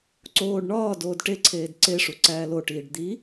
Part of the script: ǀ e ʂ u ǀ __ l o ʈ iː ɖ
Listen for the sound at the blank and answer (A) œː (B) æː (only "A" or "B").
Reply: B